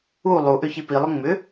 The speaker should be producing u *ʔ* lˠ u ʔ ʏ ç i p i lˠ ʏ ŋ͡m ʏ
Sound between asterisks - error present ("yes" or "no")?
yes